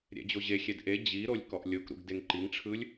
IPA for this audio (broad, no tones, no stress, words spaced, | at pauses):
ɾʲɛ̰d͡ʑoʑexʲɛd ʔe d͡ʑiɾolʲ kɔʔlʲokɾṵɡ deŋǃiŋʈ͡ʂʰɯlʲ